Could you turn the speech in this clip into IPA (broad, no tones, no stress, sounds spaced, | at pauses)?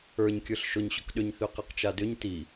ə˞ ɲ kʲ ə˞ ɬ ʃ ʊ ɲ ɕ ʊ k ɗ ʏ ɲ θ ʏ q ɘ q t͡ʃ a d ʏ ɲ t i